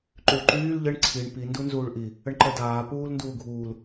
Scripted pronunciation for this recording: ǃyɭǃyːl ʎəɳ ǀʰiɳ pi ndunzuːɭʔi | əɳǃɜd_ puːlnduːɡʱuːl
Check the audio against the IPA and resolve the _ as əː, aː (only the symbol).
aː